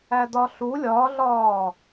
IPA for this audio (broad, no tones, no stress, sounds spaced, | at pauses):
æ d ɒ ɬ u lʲ ɒ ɮ ɒː